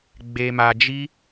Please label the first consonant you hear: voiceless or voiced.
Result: voiced